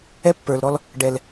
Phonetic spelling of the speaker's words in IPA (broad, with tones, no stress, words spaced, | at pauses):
ɛ˦ pːə˞˨lɾɔ˦l | ɖɛ˨l